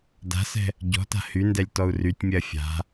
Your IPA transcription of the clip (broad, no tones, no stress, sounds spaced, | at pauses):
d a̤ s ɛ̤ | ɟ ɔ̤ t a̤ h y n d ɛ lʲ t ɔ u̯ r y tʲ mʲ ɜ fʲ a̤